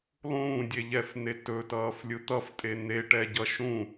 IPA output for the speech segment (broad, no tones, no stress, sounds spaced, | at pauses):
lˠ ũː dʲ e ʎ ɛ f n̪ e t ɵ t ʌː f lʲ ɯ t̪ ʌ f tʼ e n̪ e ʈ ɛ ɟ ʌ ʃ ũ